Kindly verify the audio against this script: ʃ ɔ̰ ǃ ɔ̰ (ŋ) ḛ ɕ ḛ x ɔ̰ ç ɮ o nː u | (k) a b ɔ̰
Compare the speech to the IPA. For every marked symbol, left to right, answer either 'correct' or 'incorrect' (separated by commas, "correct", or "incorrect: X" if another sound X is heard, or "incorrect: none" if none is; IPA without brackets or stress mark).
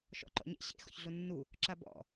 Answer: incorrect: ɲ, incorrect: ǁ